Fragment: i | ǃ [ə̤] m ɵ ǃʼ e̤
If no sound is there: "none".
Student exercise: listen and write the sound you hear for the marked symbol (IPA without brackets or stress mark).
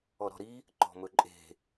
ɔ̤